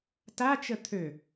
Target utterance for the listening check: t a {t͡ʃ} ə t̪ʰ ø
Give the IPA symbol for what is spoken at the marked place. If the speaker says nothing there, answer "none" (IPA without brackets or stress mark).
t͡ʃ